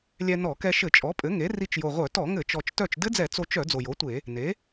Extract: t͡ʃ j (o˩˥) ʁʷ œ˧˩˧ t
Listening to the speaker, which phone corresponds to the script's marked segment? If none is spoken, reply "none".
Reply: o˨˩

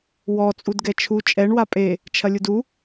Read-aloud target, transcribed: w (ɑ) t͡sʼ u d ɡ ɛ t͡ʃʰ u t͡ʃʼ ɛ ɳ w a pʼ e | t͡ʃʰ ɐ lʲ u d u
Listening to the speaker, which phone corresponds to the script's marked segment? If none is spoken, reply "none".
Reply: ɔ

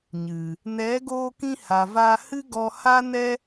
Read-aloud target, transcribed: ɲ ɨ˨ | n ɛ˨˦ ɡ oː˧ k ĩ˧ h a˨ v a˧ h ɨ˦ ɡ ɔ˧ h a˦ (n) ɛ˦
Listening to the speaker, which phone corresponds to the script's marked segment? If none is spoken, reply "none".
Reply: n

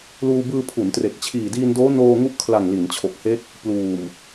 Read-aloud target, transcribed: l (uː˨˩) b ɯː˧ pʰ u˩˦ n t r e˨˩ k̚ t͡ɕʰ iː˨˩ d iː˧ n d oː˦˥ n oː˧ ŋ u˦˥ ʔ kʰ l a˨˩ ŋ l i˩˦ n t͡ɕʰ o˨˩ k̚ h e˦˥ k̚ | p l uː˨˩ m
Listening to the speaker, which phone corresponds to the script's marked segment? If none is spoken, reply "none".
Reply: uː˧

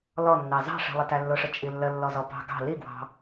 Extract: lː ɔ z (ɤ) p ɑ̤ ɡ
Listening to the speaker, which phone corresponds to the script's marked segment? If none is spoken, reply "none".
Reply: ɔ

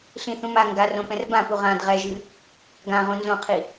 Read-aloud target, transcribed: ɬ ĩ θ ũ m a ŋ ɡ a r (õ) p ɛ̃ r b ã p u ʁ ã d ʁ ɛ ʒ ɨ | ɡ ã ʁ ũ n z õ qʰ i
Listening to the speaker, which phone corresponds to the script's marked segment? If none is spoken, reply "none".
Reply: õ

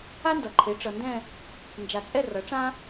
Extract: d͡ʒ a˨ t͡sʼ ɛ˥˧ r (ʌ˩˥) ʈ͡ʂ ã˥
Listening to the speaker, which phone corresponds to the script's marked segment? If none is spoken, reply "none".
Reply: ʌ˩˥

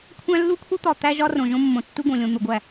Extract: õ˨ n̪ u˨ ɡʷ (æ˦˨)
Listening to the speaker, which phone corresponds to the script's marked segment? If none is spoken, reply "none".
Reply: æ˦˨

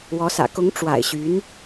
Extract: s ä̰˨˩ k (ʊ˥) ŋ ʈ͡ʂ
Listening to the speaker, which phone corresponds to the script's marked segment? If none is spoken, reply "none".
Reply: ʊ˧˥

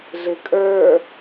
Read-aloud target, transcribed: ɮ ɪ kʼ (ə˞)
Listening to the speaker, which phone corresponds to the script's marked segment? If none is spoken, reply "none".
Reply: ə˞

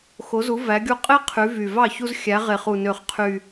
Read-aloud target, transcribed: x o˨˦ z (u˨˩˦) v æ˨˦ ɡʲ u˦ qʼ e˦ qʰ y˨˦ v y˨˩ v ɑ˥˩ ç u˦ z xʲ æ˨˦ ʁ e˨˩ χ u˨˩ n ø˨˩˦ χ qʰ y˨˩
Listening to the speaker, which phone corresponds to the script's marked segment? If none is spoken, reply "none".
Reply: u˨˦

